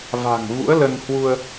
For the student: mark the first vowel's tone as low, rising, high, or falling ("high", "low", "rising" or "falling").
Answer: low